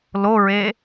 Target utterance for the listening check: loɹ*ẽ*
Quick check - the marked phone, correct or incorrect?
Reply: incorrect